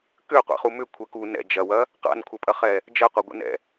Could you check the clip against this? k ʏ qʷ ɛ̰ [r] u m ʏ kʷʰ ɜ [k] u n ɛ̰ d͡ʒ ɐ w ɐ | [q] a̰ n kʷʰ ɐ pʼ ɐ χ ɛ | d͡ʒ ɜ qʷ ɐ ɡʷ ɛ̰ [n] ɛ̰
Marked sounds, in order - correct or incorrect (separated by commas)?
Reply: incorrect, correct, correct, correct